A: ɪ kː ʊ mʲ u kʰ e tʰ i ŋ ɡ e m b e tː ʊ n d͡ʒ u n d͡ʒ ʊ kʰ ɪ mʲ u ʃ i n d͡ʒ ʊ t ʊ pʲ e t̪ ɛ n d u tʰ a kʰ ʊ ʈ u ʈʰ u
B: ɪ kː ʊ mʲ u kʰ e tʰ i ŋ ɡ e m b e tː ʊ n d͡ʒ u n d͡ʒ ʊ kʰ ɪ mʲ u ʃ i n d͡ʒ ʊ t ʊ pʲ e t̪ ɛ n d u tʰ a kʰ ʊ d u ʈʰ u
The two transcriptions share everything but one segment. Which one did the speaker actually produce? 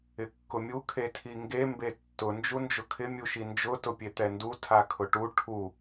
A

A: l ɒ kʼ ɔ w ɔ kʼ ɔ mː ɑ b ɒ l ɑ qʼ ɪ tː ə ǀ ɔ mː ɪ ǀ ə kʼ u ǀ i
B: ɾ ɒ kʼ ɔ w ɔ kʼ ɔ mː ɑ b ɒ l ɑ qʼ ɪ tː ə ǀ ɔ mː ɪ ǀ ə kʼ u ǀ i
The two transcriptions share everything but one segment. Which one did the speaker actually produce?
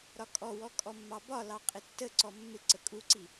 B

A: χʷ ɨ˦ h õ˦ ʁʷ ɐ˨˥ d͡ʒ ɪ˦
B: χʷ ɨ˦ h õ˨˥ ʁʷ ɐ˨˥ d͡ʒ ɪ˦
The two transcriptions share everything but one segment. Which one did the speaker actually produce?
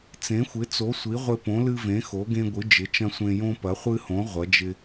B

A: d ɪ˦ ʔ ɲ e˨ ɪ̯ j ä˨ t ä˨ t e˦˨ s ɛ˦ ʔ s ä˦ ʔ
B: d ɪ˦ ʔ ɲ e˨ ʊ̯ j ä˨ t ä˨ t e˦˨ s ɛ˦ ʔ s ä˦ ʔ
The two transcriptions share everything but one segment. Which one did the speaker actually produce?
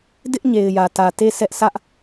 A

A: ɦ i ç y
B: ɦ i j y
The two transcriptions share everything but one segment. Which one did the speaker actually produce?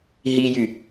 B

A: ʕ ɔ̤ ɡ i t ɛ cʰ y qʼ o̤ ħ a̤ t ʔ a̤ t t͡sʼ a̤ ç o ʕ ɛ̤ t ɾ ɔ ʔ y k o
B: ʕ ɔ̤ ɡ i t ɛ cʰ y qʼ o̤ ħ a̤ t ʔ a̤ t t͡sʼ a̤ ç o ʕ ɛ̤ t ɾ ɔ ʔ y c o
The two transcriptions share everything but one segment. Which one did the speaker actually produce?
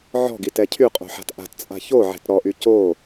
B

